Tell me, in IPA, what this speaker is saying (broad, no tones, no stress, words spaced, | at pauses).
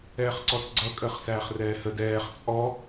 ɛːχǀɔsɡ͡ǀʌ kʼəːχsæːχrɛːhəd ɛːχ t͡sʼɔ